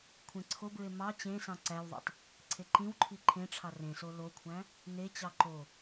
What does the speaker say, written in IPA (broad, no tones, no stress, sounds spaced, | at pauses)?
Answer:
kʷʰ ẽ ǀʰ o b ɹ e m ɑ t͡ɕ ẽ s ɑ̃ ǀ æ w ðˤ ḛ tˤ | ǀʰ e ǃ ĩ w ǃʰ i ǃʰ ẽ ʈ͡ʂʰ ɑ r ẽ s o l o kʷʰ æ̃ | n e t͡ɕ ɑ ǃ o